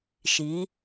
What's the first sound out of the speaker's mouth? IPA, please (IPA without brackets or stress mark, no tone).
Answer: ʃ